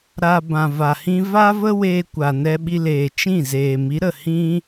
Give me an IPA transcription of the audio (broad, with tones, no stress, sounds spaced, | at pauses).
ɾ a˧ b ã˨ v a˨ h ĩ˦ v a˦ v ə˦ w eː˧ kʷ a˨ n ɛ˧ ɓ i˧ l eː˨ t͡ʃ ĩ˦˨ z eː˨ m i˨˦ ɾ ə˨ h ĩ˦